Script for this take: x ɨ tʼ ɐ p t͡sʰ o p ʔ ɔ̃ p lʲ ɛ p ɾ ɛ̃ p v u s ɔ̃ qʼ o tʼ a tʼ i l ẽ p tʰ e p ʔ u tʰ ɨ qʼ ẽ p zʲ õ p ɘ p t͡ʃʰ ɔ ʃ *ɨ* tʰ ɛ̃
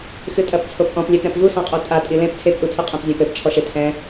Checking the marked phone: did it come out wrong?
yes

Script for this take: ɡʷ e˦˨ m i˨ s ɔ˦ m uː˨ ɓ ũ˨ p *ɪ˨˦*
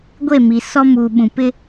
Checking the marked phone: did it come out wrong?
yes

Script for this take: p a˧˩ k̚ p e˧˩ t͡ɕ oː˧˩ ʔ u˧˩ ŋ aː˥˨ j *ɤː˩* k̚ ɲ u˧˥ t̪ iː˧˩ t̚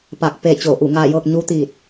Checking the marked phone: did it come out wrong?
yes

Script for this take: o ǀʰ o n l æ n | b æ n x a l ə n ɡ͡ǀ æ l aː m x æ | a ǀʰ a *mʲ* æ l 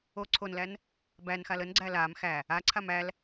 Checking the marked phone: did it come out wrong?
yes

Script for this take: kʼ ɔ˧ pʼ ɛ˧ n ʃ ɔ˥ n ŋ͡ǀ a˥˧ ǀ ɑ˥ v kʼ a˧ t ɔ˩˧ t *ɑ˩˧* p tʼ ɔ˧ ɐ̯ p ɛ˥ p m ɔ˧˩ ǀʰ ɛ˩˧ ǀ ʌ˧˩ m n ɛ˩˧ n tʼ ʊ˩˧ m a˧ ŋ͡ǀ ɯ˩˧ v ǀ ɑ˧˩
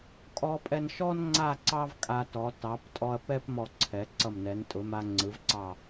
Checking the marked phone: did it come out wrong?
no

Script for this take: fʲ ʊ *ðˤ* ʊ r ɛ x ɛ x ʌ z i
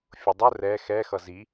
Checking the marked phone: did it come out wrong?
yes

